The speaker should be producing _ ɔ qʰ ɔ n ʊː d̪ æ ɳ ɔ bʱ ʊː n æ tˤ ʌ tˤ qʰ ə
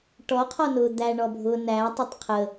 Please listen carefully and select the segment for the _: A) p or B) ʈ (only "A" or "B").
B